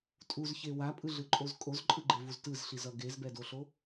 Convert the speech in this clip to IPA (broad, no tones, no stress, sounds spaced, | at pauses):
tʼ u z ç e w a pʼ ɯ ɮ ɯ ǃʼ o z kʼ o z ǃʼ ɯ ɡ͡ǃ e v u z t ɯ z ɬ i z ʌ ɡ e z b ɛ d o ɬ o